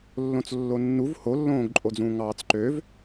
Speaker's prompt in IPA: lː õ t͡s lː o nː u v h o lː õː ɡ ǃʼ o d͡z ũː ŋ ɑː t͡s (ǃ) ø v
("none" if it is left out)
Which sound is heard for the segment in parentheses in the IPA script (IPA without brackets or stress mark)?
ǃ